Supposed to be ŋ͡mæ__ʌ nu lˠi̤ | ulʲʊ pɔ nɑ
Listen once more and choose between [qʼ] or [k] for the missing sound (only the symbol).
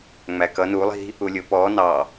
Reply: k